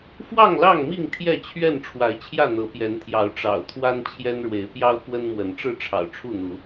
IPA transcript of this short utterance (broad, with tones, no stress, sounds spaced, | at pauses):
f w ɑ˥˨ ŋ l ɑ˥˨ ŋ m i˥˨ ŋ t̪ʰ j ɛ˥˨ t͡ɕʰ ɥ ɛ˥˨ n ʈ͡ʂʰ w a˨˦ ɪ̯ t͡ɕʰ j ä˥˨ n̪ ɤ˨˦ p j ɛ˨˦ n t̪ʰ j ɑ˨˦ ʊ̯ ʈ͡ʂ ɑ̰˨˩ ʊ̯ t̪ʰ w a˦ n t͡ɕʰ j ɛ˦ n ɻ w e˨˦ ɪ̯ p j ɑ˦ ʊ̯ k w ə˦ n m w ə˨˦ n ʈ͡ʂ ɻ̩˥˨ ʈ͡ʂʰ ɑ̰˨˩ ʊ̯ ʈ͡ʂʰ u˥˨ n̪ u˨˦